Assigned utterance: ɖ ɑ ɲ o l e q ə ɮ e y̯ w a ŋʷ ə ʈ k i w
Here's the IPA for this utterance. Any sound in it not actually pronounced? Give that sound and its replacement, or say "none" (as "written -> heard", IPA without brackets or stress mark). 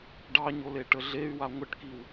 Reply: q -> ʈ